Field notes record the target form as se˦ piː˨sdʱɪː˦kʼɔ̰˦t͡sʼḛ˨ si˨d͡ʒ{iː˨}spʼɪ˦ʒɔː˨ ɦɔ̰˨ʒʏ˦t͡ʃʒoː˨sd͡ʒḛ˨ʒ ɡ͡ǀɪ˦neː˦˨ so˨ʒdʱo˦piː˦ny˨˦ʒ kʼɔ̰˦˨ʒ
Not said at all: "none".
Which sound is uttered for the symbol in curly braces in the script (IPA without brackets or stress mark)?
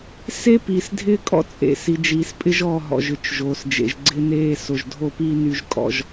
iː˨